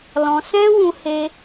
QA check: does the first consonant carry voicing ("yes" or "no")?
yes